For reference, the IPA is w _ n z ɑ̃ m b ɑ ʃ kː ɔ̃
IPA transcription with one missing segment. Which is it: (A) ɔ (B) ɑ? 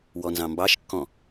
A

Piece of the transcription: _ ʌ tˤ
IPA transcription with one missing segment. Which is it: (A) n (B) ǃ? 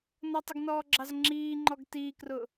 A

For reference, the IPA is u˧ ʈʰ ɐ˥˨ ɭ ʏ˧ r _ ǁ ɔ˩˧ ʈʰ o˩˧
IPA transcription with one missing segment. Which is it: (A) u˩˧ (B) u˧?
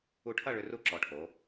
B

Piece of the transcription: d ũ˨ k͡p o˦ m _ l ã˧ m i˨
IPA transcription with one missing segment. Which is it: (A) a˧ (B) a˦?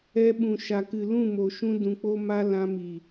B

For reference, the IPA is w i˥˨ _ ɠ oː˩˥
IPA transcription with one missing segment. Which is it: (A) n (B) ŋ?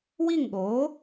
B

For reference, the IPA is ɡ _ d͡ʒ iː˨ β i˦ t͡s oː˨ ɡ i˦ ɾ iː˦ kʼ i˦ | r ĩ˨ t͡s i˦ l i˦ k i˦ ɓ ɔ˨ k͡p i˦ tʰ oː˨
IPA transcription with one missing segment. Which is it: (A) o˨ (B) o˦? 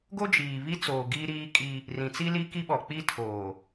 B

